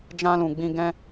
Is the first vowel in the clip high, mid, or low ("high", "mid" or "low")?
low